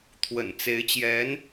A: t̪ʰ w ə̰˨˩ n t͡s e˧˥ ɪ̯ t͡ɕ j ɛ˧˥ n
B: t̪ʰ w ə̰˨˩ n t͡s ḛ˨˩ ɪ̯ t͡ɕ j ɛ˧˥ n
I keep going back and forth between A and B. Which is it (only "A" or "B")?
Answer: A